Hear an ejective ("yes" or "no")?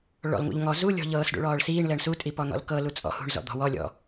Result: yes